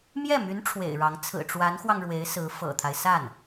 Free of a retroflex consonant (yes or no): no